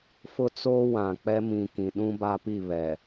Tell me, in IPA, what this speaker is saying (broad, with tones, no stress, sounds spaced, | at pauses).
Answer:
f ʊ˦ t͡s oː˦ w ã˨ k͡p ɛ˦ m ĩ˨ k ĩ˨ ɗ ũ˦ b a˦ p i˦˨ β ɛ˨